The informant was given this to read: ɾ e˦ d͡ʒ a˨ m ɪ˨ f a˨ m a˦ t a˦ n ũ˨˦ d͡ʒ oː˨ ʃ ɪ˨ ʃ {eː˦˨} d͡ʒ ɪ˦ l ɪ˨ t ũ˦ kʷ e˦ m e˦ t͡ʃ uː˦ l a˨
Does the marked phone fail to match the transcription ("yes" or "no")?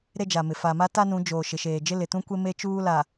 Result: yes